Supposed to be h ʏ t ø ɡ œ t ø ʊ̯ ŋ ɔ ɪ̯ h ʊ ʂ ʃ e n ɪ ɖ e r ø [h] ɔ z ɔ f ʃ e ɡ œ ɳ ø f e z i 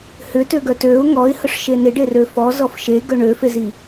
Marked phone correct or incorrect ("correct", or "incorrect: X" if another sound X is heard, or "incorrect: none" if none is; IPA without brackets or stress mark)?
incorrect: f